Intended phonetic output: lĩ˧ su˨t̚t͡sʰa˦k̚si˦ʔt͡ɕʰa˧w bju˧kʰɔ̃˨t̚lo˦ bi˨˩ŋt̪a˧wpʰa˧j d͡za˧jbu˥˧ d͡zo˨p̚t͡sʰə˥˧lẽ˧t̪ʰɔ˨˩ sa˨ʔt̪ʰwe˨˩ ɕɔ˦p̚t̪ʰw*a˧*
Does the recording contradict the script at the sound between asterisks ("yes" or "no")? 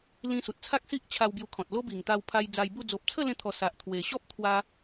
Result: no